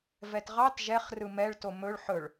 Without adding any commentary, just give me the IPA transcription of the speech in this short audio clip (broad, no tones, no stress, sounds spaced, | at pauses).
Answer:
v ɛ t ʁ ɑ t ʒ ɛ χ r ɯ m ɛ ɭ t o m ɵ ɭ ħ ɵ ɭ